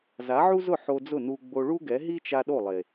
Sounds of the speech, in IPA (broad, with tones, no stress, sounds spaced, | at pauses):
z a˨˦ ʕ u˦ z ʊ˦˨ ħ o˧ d͡z ʊ˦˨ n u˧ ɡ͡b o˧ ɭ u˦ ɡ ɛ˨˦ ɦ i˦ t͡ʃ a˧ ɗ o˦˨ lˠ e˨